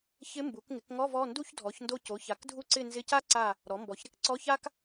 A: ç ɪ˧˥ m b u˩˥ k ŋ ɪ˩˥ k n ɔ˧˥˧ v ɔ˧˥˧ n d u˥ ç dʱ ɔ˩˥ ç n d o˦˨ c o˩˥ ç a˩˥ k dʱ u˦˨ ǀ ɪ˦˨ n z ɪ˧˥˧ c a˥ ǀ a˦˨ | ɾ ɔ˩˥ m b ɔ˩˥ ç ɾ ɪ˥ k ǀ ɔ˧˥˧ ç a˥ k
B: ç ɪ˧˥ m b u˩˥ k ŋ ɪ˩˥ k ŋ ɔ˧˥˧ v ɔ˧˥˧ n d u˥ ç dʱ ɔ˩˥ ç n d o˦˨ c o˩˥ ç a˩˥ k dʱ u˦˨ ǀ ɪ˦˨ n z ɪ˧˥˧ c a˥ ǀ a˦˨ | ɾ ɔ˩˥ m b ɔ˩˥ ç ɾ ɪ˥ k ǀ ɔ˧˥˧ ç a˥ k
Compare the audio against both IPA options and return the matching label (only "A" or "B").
B